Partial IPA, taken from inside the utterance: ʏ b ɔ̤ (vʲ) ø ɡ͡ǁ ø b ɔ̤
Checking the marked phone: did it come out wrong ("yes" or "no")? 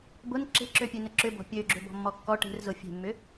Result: yes